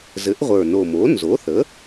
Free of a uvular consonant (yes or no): no